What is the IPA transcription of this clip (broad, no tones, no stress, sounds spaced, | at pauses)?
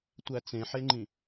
tʷ æ t͡s ẽ ħ e ŋ͡ǃ ĩ